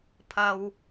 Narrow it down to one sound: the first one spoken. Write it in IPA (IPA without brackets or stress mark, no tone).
pʰ